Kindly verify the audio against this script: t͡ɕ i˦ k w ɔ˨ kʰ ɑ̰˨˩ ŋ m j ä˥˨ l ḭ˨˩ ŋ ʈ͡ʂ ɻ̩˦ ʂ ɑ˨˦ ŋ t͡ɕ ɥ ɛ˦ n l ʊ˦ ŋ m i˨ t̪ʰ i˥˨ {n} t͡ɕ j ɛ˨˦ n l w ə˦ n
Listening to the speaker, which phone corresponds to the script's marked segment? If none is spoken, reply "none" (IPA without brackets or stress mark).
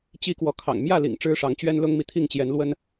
ŋ